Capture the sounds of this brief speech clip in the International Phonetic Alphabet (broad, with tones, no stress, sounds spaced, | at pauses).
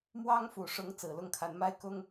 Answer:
m w ɑ˥ ŋ f u˨˩ ʂ ʊ˧˥ ŋ t͡s ɹ̩˨˩ l ʊ˥˩ ŋ kʰ a˧˥ n m a˥ ɪ̯ k ʊ˥ ŋ